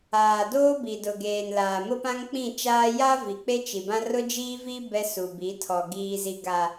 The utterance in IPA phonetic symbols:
aː˨doː˦bi˨ dʊ˨ɡeː˨nlaː˨ mʊ˦pã˦ŋk͡pĩ˦˨t͡ʃaː˦ ja˦ vi˨k͡pe˦t͡ʃi˨bã˦ rʊ˦d͡ʒiː˦vi˦ bɛ˦su˨bi˨˦tʰɔ˨ ɡiː˨zi˨ɡa˨

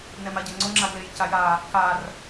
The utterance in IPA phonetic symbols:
nɛmaɟɛŋ͡ǀo ŋ͡ǁaɡlej caja | kar

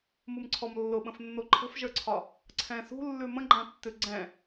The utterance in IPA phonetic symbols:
mumǀʰɔmlːʊɓə̃f nːoǃʰə̤fʒə˞ǀʰɒ | ǀʰɛ̃sṳlːʉ mə̃ɡ͡ǃãtːʉ ɡ͡ǀɛ̃

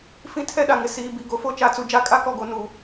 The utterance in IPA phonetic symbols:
fĩ˦ tʰɛ˦ɗa˨ŋɪ˨ siː˨ bi˨ ɡo˨fo˦ t͡ʃa˨˦t͡su˨ d͡ʒa˦˨kʼa˦kɔ˦˨ɡo˨ nu˨

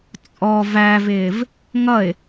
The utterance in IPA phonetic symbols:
t͡sʼɔ vævɪːv | ŋʌɪ̯

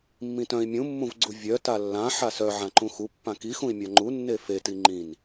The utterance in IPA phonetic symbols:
mːĩtœ̃i̯ mʲũmːũvɡ͡ǀu vʲœ talːã ħasœ ʕãǃũxupːã kixũi̯ mʲaŋ͡ǃu nːefeti ŋ͡ǃĩn

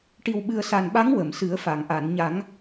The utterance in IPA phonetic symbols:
ʈi˨˩wɓɨ˨˩ə̯sa˨˩nɓa˧˥ŋ wə˨˩˨msɨ˨˩˦ə̯fa˨˩˨ŋʔa˨˩˨n ɲa˨˩˦ŋ

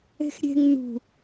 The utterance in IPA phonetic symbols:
e̤xɾʲe̤ŋ nṳ

